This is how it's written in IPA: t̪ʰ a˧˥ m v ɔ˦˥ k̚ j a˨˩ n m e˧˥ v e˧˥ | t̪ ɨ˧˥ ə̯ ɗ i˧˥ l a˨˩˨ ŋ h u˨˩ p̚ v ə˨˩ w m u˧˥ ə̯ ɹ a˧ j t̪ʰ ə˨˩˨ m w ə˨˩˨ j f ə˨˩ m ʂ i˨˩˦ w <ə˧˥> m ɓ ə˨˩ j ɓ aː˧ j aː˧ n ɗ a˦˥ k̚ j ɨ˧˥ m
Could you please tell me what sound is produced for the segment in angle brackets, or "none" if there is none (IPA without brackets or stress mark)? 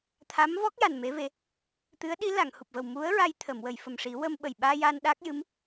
ə˧